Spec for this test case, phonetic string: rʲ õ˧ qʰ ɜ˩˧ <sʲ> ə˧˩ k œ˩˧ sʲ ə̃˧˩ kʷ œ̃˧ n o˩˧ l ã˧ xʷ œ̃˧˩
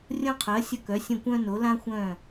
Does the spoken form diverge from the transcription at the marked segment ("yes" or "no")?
no